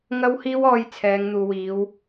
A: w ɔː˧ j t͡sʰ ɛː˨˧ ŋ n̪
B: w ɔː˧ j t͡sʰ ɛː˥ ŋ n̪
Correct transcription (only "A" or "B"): A